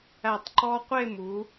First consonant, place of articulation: alveolar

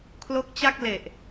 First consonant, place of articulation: velar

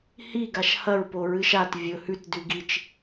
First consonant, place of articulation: glottal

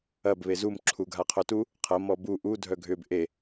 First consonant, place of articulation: labial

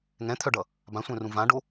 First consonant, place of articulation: velar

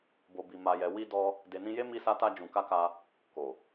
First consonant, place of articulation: labial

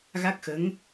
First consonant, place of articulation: velar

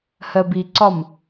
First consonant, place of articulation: glottal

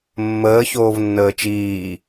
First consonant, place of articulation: labial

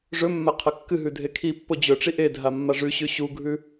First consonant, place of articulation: retroflex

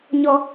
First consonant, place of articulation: palatal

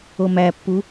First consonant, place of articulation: labial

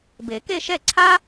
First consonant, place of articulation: labial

